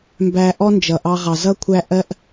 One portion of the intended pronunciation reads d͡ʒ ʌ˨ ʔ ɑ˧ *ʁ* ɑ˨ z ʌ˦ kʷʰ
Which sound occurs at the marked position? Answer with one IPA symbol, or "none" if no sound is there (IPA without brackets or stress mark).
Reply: ʁ